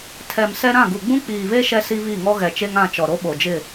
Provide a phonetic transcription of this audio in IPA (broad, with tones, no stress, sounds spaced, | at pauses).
tʰ ɛ˨ m s ɛ˦ ɾ ã˦˨ ɡ u˨ ɡ͡b ũ˦ k͡p iː˨ β e˦ ʃ ɛ˦ s i˦ β i˦˨ ŋ ɔ˦ ɣ ɛ˨ t͡ʃ e˦ ŋ ã˦˨ t͡ʃ ɔ˨ ɾ o˦ ɓ o˨ d͡ʒ ɪ˦˨